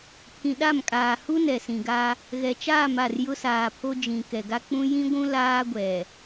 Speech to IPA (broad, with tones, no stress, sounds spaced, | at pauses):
pʰ ĩ˨ ɗ a˦˨ m kʼ aː˨ h u˦ n ɛ˨ s ĩ˨ ɡ a˦ | ɣ ɛ˨ t͡ʃ aː˦˨ m a˦˨ r j ʊ˦ s aː˨ pʰ o˦ d͡ʒ ĩ˨ k ɛ˨ ɡ a˦ k͡p ũ˦ j ĩ˦ ɡʷ ũ˦ l aː˦ ɡʷ ɛ˨